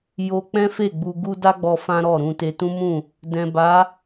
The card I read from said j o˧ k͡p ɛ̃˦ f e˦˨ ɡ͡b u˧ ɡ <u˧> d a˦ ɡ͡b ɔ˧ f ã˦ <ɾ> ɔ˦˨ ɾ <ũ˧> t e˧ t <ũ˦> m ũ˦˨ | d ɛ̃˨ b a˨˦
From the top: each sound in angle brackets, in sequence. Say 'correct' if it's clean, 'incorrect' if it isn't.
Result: incorrect, correct, correct, correct

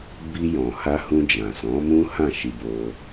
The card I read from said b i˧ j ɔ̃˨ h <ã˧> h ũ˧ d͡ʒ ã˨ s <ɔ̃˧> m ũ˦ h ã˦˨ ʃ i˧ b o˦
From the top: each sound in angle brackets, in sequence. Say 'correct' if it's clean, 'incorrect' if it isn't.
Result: incorrect, incorrect

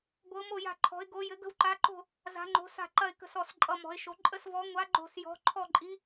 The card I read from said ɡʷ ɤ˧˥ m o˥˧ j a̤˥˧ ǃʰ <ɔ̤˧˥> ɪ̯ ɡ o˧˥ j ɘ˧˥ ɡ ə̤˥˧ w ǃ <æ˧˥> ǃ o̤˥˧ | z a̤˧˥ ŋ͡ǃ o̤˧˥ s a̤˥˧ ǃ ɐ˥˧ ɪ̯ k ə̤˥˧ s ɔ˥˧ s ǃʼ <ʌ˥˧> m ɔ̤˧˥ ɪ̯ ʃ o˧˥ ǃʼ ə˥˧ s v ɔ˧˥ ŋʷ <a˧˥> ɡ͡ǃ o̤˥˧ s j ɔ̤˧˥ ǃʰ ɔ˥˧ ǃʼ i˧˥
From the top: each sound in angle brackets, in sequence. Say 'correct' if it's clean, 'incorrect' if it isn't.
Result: correct, incorrect, correct, correct

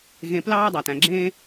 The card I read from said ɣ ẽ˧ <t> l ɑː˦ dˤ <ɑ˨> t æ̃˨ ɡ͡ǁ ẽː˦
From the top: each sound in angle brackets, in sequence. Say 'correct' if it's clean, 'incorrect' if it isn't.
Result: incorrect, correct

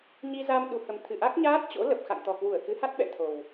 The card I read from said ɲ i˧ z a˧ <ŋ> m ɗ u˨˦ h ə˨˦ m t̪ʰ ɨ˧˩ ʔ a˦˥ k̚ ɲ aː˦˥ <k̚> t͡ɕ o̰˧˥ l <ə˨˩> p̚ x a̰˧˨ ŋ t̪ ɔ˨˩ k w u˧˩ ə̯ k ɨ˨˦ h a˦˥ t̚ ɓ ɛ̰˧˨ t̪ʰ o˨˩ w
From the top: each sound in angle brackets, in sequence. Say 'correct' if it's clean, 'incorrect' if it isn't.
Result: incorrect, incorrect, correct

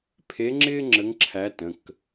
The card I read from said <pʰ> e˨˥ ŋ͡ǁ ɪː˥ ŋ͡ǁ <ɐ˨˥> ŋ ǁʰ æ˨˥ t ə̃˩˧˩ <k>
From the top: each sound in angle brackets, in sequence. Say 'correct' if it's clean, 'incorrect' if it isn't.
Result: correct, incorrect, correct

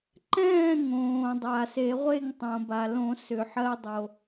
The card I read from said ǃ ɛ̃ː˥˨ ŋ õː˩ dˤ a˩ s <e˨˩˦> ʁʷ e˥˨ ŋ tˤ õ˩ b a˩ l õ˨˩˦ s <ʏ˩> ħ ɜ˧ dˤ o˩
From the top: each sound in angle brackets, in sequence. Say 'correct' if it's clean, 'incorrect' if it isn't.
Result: correct, correct

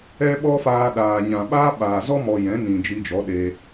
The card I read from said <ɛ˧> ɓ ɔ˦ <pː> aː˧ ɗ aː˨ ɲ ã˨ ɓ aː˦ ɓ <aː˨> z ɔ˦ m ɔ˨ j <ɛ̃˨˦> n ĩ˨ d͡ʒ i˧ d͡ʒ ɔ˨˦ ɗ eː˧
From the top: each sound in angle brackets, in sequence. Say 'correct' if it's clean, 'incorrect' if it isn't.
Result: incorrect, incorrect, correct, correct

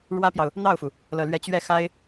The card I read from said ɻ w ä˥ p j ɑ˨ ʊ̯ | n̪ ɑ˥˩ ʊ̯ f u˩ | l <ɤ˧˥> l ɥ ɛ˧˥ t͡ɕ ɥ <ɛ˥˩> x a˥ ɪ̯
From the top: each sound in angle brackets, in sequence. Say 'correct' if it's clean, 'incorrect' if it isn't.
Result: incorrect, correct

